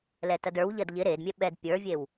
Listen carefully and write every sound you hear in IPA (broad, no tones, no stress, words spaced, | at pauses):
lɛtɐdə˞wʎɐd ʎɪ ɾedmʲɛ ɓɛd pʲə˞vʲew